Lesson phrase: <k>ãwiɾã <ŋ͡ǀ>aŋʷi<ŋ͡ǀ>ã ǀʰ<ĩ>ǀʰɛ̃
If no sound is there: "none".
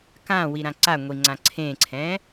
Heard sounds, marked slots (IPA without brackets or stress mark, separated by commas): k, ǀ, ŋ͡ǀ, ẽ